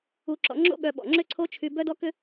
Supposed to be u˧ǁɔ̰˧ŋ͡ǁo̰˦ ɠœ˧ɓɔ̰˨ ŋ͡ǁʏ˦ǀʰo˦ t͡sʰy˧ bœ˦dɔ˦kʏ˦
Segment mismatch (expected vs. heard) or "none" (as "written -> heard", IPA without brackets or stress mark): t͡sʰ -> t͡ʃʰ